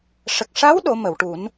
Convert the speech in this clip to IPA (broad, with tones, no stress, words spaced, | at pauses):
ʂə˨˩k̚ʂa˧˥w ɗo˨˩˦mə˨˩˨wʈu˨˩˦n